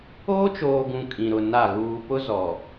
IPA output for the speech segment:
oː˦t͡ʃoː˨ ɡũ˨ kʼĩ˨ɾʊ˨na˦˨ ɣuː˨pʊ˦ zɔ˨

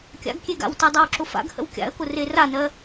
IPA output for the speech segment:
kʲa̰ɡkʲeɡa̰wtɜ dˤawǁʊfa̰ɡhə̰w kʲa̰ə̯kʊ reranɜ

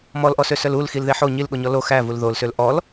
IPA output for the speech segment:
mɔlʔɔsøsœl ul xilðeħo ɲilɠoɲɔ lo xævul ðolsøl ʔɔl

